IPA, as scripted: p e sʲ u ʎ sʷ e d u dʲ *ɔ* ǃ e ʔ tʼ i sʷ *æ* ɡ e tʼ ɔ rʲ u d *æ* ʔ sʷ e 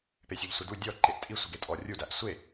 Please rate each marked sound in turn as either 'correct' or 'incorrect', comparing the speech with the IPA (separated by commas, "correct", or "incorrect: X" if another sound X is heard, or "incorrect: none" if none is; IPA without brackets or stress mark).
correct, incorrect: ə, correct